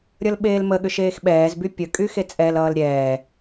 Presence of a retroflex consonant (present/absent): absent